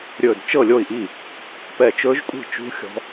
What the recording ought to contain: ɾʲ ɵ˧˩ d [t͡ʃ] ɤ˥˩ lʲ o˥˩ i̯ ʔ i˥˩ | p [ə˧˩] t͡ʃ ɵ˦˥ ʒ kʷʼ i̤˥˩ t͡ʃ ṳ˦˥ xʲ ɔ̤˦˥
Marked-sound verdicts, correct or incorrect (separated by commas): correct, incorrect